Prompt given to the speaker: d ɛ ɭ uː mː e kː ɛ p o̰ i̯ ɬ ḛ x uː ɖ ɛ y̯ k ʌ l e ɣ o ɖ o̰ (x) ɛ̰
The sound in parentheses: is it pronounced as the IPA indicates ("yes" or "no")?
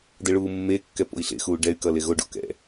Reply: no